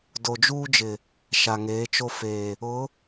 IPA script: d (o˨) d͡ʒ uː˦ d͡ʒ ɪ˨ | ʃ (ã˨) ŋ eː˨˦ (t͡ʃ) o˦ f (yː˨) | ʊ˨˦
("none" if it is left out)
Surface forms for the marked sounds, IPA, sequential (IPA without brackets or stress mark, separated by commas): o˨, a˨, t͡ʃ, eː˨